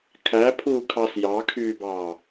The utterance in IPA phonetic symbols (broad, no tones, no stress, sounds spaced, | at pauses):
kʰ æ pʰ uː kʰ ɑ s j ɑ kʰ yː b ɑː